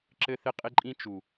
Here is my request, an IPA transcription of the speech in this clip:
ǁɘ˦θɪ˦qʼɪ˦ǃʼĩ˦ t͡ʃu˨

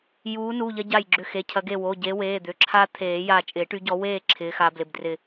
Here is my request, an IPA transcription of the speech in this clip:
juː˨˦ nu˩˧˩ʎɐ˦ ɟa˧˩jɡ͡ǁʏ˧˩ xe˩˧˩cʰɐ˨˩˦ ɡe˧˩wo˩˧˩ ɟe˨˦weː˩˧˩d̪ʏ˩˧˩ ǁʰa˦ t̪ʰeː˨˩˦ja˧˩ t͡ʃʼɪː˨˩˦ʈy˨˦ɟɔ˨˦weː˥˨ ǁʰɪː˨˦xa˨˦ blɪ˩˧˩bdrɪ˧˩

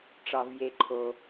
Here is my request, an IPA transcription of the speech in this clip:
ʈ͡ʂɒ˩vje˩ǃʰo˩

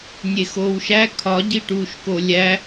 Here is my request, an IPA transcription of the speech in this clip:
nʲexoːwʃæ kʰɒ ɟiʈuːʃkolʲæ

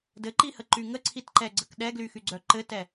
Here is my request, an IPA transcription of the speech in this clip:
dɘǃihəǃy ŋəǀʰitǃɛɡ͡ǀək ɗɛɡlyxyɡ͡ǀœ ǃɘtɛ

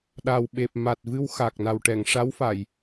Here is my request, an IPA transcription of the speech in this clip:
ɗa˨˩wɓe˨˩p̚ ma˨˩t̚ vɨ˧wxa˨˩k̚na˨˩wʈɛ˨˩˨ŋ ʂa˧˥wfa˨˩˨j

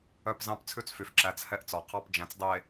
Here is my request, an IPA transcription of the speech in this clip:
œ˦pzɑ̃˦p t͡sʰʉ˦t͡sfy˨f ǁæ˨t͡s hɛ˦˨ʔt͡sɔ˨qʰɑ˦p d͡ʒæ̃˨t͡sdˤe˨

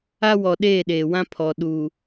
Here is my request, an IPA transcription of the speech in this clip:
a˦wɔ˨ ɗeː˦˨ɗeː˨wã˦ pʰɔ˨ ɗu˨

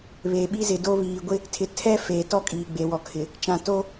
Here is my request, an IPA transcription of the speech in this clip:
βe˨ɓi˦zɪ˨do˦ βiː˨ɡʷɪ˦ | tʰɪ˨tʰɛ˦ feː˨tɔ˦kʼiː˨ ɡ͡be˨wɔ˨kʰɪ˨ | t͡ʃã˨ to˦

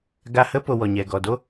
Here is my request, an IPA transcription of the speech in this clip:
ɡa˧hə˦ po˧wɔ˨ɲɛ˨ ɡɔ˨do˦

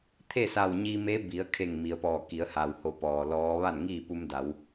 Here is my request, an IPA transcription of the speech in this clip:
t̪ʰe˥˨sa˧˩wɲi˧me˧˥ bi˩˧ə̯kʰe˧˩ŋ mi˩ə̯pɔː˧˩ki˩˧ə̯ha˩w ho˧˩pɔː˩lɔː˧˥ ʋa˥˨nŋiː˥˨ pu˧mda˩˧w

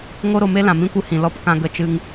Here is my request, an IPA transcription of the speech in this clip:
ŋo˦ ɾo˧me˦lã˨ mĩ˦kʷɨ˧hĩ˨ lɔ˦pkã˧ ɡə˧t͡ʃɨ˧ŋ

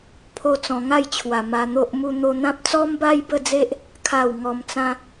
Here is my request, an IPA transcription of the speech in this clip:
pʰo˦t͡sɔ̃˧ ŋa˥˧jt͡ɕʰwa˨˩ ma˧n̪o˦ʔmu˦ n̪o˧n̪ã˦p̚ t͡sɔ˦mba˦jbə˥˧d͡ze˦ʔ | kʰa˥˧w ŋɔ˧mt͡sã˦

